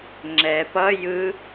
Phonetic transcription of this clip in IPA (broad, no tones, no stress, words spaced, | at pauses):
ŋ͡ǁɛ pʌ jɯ